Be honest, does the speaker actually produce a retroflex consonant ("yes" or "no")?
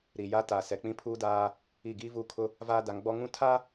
no